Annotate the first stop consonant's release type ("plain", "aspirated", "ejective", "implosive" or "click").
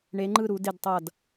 click